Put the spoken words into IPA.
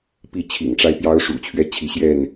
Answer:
pi˥˨t͡ɕʰḭ˨˩ŋʈ͡ʂa˦ɪ̯ pjɑ˦ʊ̯ʂṵ˨˩t͡ɕʰɥɛ˦ t͡ɕʰi˨˦ɕjɛ˥˨n

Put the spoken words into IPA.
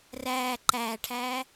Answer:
ræː ǃæːʈʰæː

